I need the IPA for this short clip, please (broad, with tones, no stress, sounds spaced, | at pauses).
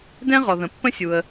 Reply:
d ɛ̃˥ ʁ ɔ˩ ð ə̃˩ pː ə̃˥ sʲ u˩ ə̯